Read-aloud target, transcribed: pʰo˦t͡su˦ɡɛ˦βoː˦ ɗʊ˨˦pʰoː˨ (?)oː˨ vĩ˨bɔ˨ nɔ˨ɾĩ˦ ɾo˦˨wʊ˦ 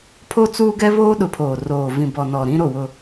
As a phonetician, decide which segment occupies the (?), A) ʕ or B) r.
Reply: B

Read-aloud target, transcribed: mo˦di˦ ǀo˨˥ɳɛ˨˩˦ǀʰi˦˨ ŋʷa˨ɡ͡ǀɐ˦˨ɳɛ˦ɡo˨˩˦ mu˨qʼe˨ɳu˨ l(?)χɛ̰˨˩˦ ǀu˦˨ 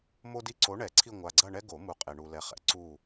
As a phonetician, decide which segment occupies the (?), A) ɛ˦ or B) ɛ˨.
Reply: B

